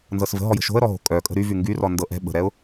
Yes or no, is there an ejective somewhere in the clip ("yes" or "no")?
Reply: yes